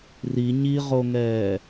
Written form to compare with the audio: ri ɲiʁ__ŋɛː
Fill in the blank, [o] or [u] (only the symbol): o